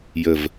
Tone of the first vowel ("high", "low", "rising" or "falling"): low